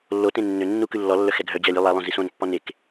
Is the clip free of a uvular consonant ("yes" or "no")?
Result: yes